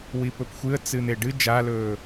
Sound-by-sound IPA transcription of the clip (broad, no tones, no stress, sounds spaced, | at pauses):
w i p ɵ p xʷ ɨ ə̯ t͡s ɨ n̪ e ɖ ɨ d͡ʒ a l ɵː